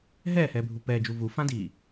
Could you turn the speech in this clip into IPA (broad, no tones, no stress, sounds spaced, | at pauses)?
ɦ ɛː h ɛː bʱ u p ɛː d͡ʒ u v u f ã d iː